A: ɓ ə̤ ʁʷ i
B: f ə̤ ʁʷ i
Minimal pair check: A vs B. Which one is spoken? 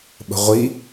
A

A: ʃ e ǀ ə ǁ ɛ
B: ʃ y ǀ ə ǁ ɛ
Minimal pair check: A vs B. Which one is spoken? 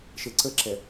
A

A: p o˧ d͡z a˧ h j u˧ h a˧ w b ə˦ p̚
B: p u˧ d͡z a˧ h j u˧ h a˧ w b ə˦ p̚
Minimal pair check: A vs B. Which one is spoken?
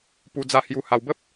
B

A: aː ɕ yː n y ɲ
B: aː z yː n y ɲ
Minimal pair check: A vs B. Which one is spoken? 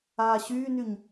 A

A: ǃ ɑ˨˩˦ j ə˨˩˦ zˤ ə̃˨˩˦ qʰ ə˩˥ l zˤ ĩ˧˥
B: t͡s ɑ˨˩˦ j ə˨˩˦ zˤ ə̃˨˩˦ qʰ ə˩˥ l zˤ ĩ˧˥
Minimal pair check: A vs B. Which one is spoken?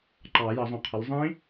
A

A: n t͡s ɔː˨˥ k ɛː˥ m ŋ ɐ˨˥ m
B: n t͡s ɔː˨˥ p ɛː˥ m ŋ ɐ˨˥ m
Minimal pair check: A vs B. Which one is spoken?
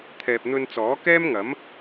A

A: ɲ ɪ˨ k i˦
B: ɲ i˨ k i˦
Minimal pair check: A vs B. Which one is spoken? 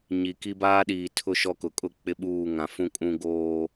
B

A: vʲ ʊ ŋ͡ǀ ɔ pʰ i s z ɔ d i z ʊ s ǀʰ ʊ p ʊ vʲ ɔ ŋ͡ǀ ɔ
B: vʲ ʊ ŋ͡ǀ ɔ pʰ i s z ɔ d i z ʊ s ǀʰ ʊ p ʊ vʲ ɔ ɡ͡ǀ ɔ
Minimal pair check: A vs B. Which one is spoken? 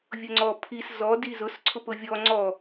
A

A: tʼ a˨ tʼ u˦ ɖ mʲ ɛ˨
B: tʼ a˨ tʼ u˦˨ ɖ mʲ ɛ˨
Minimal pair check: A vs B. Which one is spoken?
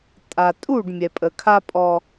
B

